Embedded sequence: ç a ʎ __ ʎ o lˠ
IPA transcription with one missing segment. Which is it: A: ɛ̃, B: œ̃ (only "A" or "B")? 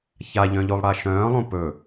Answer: B